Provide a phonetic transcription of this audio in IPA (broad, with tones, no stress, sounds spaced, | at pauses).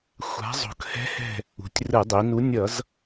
xʷ a̤˨˥ zˤ o̤˩˧ k h ɛ̤˨˥ h ɛ̤˧˩ | ṳ˩˧ tʲ r ɯ˧˩˧ dˤ i˩˧ n u˨˥ nʲ ʌ˧˩˧ z